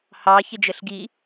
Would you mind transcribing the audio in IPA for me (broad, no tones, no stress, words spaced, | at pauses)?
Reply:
hɑ çɪd͡ʒəɬɡi